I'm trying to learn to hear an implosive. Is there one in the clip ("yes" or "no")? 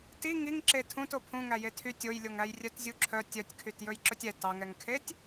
no